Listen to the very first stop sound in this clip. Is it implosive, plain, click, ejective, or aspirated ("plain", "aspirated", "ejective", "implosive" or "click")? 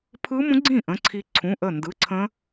aspirated